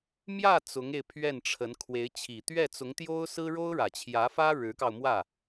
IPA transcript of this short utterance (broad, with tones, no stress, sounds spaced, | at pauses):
m j ä˥˩ t͡s ʊ˧˥ ŋ e˧ ɪ̯ pʰ ɥ ɛ˥˩ n ʈ͡ʂʰ ə˧˥ n kʰ w e˧˥ ɪ̯ t͡ɕʰ i˨˩ t̪ ɥ ɛ˥˩ t͡s ʊ˧˥ ŋ t̪ j o˥ ʊ̯ s ɹ̩˥ ɻ o˥ ʊ̯ ɻ ä˨˩ t͡ɕʰ j ä˧˥ f ä˥ ɻ ɻ̩˧˥ k ɑ˧ ʊ̯ m w ä˥˩